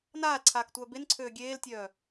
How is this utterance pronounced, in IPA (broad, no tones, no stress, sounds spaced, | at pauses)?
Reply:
n aː l ǀʰ aː k tʷ œː b e n ǀʰ øː ɡʲ eː l tʲ œː